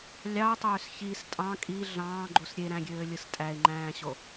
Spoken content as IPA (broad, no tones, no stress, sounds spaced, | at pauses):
lʲ ɑ o̯ tˤ øː s ç i s tʼ ɑ̃ kʼ i ɮ ɑ̃ː ɡ͡ǃ u s ɾʲ e ɾ æ̃ ɡʲ øː lʲ ɯ s tʼ æ e̯ ŋ͡ǃ æ̃ː ɕ o